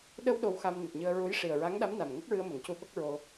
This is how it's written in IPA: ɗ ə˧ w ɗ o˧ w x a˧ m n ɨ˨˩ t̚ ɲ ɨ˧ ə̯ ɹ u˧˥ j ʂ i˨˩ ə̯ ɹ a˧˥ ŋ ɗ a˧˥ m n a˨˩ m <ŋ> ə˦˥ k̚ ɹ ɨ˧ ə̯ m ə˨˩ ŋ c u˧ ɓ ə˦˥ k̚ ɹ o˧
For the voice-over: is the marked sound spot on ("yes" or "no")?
yes